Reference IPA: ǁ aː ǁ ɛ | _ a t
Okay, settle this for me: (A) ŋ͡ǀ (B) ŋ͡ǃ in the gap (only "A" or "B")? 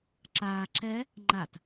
B